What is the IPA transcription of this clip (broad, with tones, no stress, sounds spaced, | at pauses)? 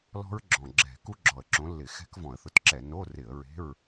l ɔ̤˦˥ ɹ ɡ͡ǁ ɔ̃˨˩ ɡ͡ǁ ɛ̤˧˩˧ k u˦˥ ɡ͡ǁ ɔ˨˩ ə̯ ǁ õ˨˦ lː ɪ˧˩˧ x ɛ̤˦˥ k v ɔ̃˧˩˧ ə̯ θ ʊ˨˦ t ǁ ɛ˧˩˧ n o˧˥˧ r ɪ˧˩˧ ə̯ ɹ e̤˧˥˧ ɹ